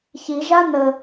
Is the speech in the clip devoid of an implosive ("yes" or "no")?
yes